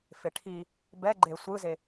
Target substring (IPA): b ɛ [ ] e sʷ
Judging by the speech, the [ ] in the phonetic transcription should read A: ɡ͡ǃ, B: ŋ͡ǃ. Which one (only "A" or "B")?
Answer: A